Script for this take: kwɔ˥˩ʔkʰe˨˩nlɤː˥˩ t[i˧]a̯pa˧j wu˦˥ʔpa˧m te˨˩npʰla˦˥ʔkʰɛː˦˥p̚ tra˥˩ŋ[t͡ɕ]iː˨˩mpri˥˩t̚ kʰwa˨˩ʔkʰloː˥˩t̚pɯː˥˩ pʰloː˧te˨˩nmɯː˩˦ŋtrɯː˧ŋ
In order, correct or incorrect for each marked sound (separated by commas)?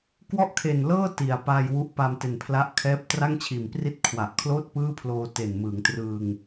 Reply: incorrect, incorrect